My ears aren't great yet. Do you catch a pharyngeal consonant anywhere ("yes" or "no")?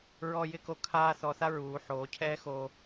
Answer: yes